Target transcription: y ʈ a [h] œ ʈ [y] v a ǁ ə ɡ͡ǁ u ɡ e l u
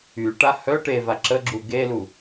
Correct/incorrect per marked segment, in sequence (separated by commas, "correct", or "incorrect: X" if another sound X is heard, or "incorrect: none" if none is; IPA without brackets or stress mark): correct, incorrect: e